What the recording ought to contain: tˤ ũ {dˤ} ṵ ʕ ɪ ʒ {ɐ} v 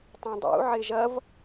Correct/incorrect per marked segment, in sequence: correct, correct

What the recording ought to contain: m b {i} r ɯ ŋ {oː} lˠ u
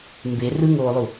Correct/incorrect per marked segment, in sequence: incorrect, correct

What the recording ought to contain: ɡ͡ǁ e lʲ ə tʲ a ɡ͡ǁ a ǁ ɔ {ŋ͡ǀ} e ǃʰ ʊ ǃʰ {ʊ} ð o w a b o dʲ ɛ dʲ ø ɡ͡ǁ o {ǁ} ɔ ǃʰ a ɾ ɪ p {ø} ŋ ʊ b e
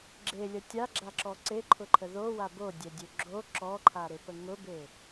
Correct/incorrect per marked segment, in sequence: incorrect, incorrect, correct, incorrect

